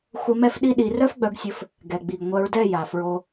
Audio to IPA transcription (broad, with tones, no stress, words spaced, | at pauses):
xʷə˧ mɛ˦fɗi˦ ɗi˧ rœ˦fɡ͡bœ˧ɡsʲɘ˧f | ɡɛ˨ɡ͡bi˨ɡ ŋʷœ˧ɹdɛ˦˨ ja˨fɹo˧